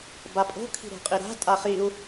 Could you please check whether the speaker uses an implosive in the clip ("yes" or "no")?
no